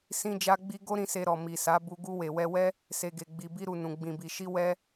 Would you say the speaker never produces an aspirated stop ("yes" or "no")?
yes